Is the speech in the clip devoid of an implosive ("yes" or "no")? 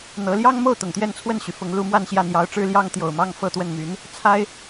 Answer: yes